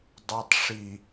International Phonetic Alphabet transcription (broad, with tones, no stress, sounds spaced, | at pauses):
dˤ œ˨ tˤ ʂ i˨